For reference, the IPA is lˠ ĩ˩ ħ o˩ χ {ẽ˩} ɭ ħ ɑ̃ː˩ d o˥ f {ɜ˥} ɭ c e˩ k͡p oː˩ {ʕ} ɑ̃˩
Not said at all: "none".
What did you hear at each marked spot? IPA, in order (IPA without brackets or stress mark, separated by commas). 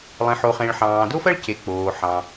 ẽ˩, ɜ˥, ħ